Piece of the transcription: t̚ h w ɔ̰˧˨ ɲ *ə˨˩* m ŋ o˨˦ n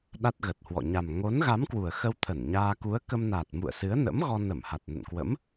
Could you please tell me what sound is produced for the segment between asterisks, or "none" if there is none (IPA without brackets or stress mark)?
a˨˩